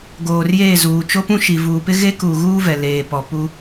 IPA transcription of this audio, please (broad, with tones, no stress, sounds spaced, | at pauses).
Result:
ɡ oː˨ r j eː˦˨ z uː˨ t͡ʃ o˦ p ũ˦ ʃ i˨ v uː˨ p ɪ˦ ɣ e˦ k uː˨ ɣ uː˦ v ɛ˨ l eː˨ p ɔ˨ p u˦